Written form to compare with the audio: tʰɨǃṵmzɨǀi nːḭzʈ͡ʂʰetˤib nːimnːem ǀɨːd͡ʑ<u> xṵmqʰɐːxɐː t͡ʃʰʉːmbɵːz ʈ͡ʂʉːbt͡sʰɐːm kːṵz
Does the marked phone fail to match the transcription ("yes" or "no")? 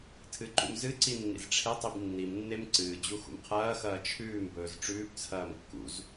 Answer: no